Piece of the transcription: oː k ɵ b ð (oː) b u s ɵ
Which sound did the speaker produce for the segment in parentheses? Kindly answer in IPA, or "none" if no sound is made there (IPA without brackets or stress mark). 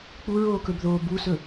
oː